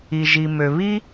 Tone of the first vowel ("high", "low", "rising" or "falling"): low